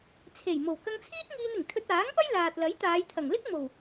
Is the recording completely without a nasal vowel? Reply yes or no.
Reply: yes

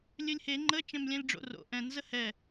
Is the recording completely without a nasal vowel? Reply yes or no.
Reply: no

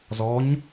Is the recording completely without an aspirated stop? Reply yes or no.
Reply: yes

